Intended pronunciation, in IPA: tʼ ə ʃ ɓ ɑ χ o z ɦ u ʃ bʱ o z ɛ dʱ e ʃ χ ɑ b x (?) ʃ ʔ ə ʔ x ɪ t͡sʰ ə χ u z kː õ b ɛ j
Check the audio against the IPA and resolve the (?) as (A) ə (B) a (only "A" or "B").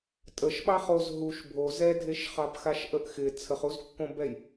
B